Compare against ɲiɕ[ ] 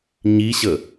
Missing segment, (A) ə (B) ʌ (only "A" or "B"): A